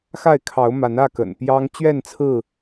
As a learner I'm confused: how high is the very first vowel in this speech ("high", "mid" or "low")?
low